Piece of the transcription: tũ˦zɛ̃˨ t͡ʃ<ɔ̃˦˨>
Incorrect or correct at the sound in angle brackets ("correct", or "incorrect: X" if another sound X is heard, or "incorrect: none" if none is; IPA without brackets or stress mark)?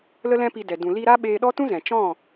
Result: correct